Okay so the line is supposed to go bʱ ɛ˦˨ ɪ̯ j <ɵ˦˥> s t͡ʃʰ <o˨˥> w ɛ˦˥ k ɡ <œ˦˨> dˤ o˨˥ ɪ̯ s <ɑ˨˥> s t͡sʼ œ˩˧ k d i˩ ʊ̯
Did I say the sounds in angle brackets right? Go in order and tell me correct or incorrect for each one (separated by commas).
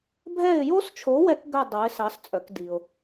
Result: incorrect, correct, correct, correct